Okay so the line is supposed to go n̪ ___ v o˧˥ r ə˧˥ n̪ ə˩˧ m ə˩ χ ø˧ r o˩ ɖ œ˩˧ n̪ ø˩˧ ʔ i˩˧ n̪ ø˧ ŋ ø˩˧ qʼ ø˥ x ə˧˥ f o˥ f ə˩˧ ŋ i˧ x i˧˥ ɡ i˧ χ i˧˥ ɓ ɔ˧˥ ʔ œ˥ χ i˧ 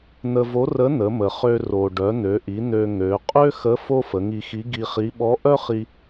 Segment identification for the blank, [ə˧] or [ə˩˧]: ə˧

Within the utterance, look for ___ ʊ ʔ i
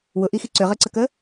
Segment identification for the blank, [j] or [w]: w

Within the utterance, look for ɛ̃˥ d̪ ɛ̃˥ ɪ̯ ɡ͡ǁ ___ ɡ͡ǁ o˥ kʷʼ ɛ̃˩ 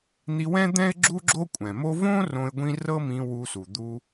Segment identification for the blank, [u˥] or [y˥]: u˥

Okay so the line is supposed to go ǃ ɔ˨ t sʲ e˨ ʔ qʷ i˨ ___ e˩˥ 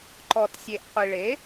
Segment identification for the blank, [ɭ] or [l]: ɭ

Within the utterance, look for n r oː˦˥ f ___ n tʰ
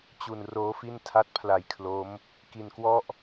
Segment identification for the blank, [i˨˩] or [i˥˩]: i˥˩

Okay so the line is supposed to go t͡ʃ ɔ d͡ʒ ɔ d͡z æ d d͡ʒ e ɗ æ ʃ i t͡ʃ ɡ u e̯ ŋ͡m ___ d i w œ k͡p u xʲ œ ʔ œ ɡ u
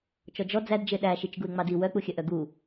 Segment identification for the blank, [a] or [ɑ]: ɑ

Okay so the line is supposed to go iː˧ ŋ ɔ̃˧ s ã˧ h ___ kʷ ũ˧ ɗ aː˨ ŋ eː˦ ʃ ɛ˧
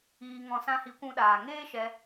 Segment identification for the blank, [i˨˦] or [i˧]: i˨˦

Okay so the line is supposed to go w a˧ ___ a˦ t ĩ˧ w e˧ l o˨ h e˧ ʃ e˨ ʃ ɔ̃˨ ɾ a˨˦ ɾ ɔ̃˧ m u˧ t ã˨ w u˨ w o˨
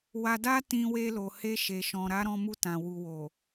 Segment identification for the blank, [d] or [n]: d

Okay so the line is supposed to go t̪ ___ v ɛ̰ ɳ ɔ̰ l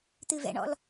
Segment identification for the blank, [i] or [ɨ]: ɨ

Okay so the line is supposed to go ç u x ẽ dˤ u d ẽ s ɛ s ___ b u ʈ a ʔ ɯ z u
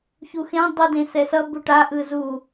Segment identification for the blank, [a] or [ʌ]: ʌ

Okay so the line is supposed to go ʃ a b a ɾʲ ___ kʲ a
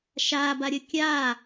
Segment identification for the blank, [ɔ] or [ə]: ə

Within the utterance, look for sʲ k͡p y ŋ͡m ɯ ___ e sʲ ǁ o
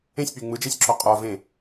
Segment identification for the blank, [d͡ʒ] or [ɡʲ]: d͡ʒ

